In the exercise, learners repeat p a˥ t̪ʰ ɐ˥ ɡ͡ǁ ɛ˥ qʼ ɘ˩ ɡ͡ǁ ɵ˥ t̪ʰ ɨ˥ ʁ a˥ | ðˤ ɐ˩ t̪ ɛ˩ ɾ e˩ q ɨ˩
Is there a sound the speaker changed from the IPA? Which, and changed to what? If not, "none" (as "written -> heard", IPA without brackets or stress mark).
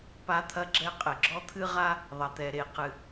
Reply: ɵ˥ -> ɔ˥